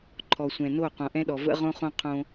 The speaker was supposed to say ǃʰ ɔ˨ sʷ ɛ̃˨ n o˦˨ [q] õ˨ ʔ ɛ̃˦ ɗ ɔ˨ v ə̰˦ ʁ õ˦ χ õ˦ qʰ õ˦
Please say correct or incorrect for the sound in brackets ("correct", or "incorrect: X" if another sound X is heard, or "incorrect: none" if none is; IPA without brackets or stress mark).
correct